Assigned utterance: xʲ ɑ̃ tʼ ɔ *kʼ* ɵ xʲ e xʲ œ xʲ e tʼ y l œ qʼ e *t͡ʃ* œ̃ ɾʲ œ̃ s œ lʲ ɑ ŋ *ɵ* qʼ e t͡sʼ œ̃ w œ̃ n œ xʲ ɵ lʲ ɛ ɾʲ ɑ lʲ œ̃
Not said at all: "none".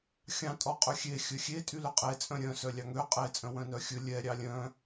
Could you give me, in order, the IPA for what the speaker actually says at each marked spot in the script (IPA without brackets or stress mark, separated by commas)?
qʼ, t͡sʼ, ø